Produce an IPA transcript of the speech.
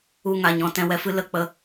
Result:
u˦˨ŋa˨ɲɔ̃˧ tɛ̃˧wɛ˧fɨ˦ lə˨k͡pə˧

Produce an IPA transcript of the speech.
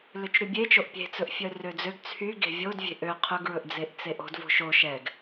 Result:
løt͡ʃɾybʲet͡ʃoʔ pʲe̤t͡sɵʔfʲœ rød͡zøɡ t͡sʰy ɡe̤vʲodvʲe̤ ʔø qʰɵɡɹɵʔd͡zeʔ t͡seʔo̤d vo̤ʃo ʃɛɡ

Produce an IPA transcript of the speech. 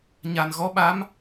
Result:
ɲa˨˩nɣɔ˧˥ɓa˧˥m

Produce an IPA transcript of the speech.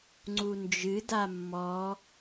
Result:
ŋ͡ǀund͡ʒɨ damːɔ

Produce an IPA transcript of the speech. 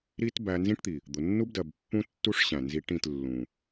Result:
ɾi˦t bæ˧nzĩ˦ʈt̪i˨ | d̪ʊ˨nːu˦bdɜ˨b pːũ˦tːu˦ʂ ɕæ̃˨ nzi˧ʈĩ˦˨t lːũ˨

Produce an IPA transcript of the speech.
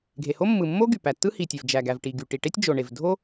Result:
ɡʱe˩ho˥ mːɯ˩mːo˥ ɡy˩pæ˩tːɯ˥ hi˩tʲe˩v d͡ʒæ˩ɡæ˩vʈi˩ɡy˩ ʈi˩ʈe˥tʲ d͡ʒo˩ɳe˩vdʱo˥

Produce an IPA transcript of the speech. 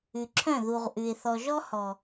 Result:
ʉ˨ǁʰœ̃˦˨ðu˨ʁ ʔʉ˨ɪ̯ θɔ˨ʒɔ˦hɔ˨

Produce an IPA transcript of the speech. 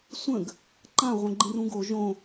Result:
sʷə̃ɡ | ǃãʁʷə̃ɡ͡ǃĩrũ ɡo ʒõ

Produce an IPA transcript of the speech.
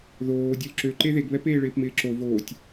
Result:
ðoː dʲolǁø ǃeðeɡβɛp eːɭɪːpmɪːǁo voːtʲ

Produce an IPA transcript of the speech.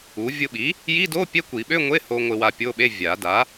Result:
u˩˥ vʲʊ˧ɓi˩˥ | ji˧˥˧do˧˥˧ pʲɛ˧˥˧kʷi˨˩˦ɓø˧˥˧ŋʷe˧˥˧ ho˧ ŋʷɪ˧wa˧pʲo˧˥˧ɓe˧˥˧ vʲa˨˩˦ da˩˥

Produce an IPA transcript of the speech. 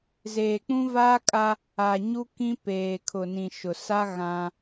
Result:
zeː˨k͡pũ˦vaː˦kʼa˦ | a˨ɲu˦ kĩ˦peː˨kʰʊ˨nĩ˨ ʃʊ˨ sa˦ ɣã˦

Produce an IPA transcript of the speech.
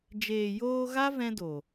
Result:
d͡ʒeː˨joː˧ɣa˦ vɛ̃˦do˨

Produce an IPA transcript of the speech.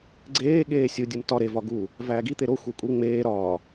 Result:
ɡ͡ǀeːɠeː sʲu dʲumtɒ ɾevɒ ɡu | væːɡi t̪eɾo xʷekʷʼi ŋ͡meː ɾɒ

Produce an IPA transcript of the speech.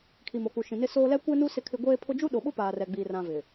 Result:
kʰi˨mo˨ku˨ʃĩ˨ nɪ˦soː˦ lɛ˦kʷɛ˦nu˦ sɪ˦kʰɪ˦ ɡʷeː˦pʰʊ˦ d͡ʒu˦ɗo˨ɓʊ˦ paː˨rɛ˨ɡ͡biː˨rã˨ vɪ˨

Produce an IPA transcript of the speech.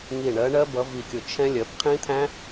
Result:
ŋi˧˩ ɳɜ˨˦ɳɜ˦˥bʌ˨˦ vi˧˩kʲʊ˧˩ t͡ʃʰɛ̃˦˥ lʲɜ˨˦pqʰĩ˦˥t̪ʰæ̃˦˥

